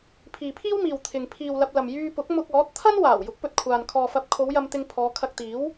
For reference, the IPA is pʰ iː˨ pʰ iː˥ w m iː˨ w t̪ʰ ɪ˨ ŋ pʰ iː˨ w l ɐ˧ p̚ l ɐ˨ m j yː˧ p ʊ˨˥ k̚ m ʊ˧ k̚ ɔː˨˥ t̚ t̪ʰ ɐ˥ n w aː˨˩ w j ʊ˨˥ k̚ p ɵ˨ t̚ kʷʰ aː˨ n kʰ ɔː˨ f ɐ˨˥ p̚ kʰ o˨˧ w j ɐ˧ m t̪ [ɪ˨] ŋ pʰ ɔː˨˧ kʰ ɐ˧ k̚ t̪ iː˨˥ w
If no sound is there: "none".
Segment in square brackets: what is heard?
ɪ˧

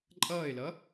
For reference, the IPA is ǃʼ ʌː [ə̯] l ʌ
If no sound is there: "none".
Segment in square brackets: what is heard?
ɪ̯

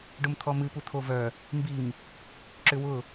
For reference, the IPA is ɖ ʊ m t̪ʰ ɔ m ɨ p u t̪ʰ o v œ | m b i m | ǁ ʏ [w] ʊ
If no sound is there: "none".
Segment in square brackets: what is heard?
w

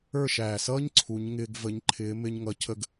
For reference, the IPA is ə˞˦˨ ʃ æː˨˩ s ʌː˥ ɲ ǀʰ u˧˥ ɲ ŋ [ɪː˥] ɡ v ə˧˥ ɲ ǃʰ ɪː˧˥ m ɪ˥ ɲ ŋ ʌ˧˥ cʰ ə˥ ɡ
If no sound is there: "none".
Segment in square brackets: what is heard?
ɪː˥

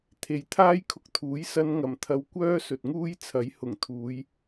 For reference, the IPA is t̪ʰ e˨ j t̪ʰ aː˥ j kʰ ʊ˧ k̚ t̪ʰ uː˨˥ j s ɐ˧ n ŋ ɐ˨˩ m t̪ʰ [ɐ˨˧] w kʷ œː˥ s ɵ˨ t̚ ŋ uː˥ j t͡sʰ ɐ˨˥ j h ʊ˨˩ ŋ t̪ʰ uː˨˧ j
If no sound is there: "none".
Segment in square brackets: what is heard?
ɐ˨˧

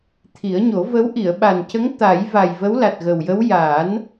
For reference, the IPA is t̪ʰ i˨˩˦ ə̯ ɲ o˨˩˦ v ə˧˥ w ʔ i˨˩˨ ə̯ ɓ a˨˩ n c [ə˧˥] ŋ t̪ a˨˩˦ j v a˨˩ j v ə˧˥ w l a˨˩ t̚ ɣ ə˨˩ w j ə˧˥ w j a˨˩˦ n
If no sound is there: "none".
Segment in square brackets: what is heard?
ə˧˥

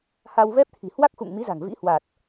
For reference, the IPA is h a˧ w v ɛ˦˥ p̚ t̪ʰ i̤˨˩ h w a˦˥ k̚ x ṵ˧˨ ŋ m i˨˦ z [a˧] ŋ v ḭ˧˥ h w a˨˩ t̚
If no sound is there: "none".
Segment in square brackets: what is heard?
a̤˨˩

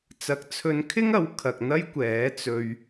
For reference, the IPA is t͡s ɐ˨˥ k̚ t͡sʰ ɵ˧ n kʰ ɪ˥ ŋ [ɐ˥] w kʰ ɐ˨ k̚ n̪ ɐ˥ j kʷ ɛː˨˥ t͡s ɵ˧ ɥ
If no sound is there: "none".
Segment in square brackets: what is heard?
ɐ˨˥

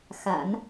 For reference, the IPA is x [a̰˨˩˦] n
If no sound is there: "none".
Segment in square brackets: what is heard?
a̰˨˩˦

